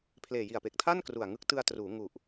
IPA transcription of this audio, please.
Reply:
pʰ l eː˨˩ j i˨˩ a̯ p e˨˩ k̚ tʰ a˥˩ n k r u˨˩ a̯ ŋ ɯ˦˥ k̚ t ɯ˧ a̯ t r uː˩˦ ŋ u˨˩ ʔ

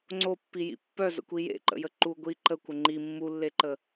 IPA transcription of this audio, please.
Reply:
ŋ͡ǀ o pː i j ḭ pː œ z ə̰ kʷ i j ḛ ǃ ə̰ j ə ǃ u ɡʷ i ǃ ə kʷ ə ŋ͡ǃ i mː u lː e ǃ ə

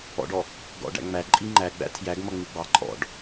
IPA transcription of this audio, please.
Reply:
ɔ̰ ɖ ɔ | ɡ ɔ̰ ɖ æ̰ ŋ͡m æ ǃʼ i ŋ͡ǃ æ ɡ͡b æ̰ tʰ j æ ɡ m ʌ ŋ͡m i ɡ͡b ɑ ǃʼ ɔ̰ ɖ

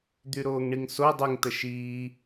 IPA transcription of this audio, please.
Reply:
d̪ y ɾ oː ŋ ɳ i ŋ s o dˤ y ŋ t ə ʃ iː

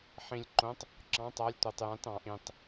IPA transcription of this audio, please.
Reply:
ħ ĩ˨ lʲ ǃ õ˨˥ tˤ | ǁ ɑ̃˨˥ tˤ a˨˥ lʲ tʷ a˨ tˤ j ã˨˥ t ɑ̃˨ ʔ ĩ˨ tˤ

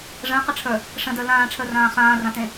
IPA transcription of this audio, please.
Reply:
ʐ ə̃ː q ə ʈ͡ʂʰ ə˞ | ʂ ə̃ d ə˞ l ãː ʈ͡ʂʰ ə˞ r ãː χ ãː r ã t ẽ

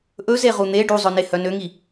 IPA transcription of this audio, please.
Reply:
ʔ ɵ z e ʁ u n̪ e ɖ u zˤ ɵ n e h œ n ø ŋ i

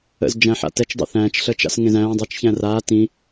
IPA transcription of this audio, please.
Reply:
ə̰ z d͡ʒ æ̃ ħ a̰ t ɛ t͡ʃ dˤ ə̰ θ æ̃ː t͡ʃ ɬ əː t͡ʃ a̰ s ŋ ẽ z æ̃ː dˤ a t͡ʃ ç æ̃ r a t ĩ

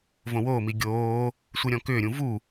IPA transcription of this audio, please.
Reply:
v õ w oː m i ɡʲ oː | sʷ i ɾʲ ɔ̃ k ʏː ɾʲ ũ v u

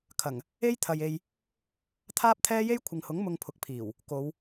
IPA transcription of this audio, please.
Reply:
kʰ ɐ˨˩ ŋ | e˥ j t̪ʰ ɐ˨ j e˧ j | t̪ʰ aː˥ p̚ t̪ʰ ɛː˥ j e˥ j kʷʰ ɪ˨ ŋ h ʊ˨˥ ŋ m ʊ˧ ŋ pʰ ʊ˨ k̚ pʰ iː˨˩ w | k o˨˧ w

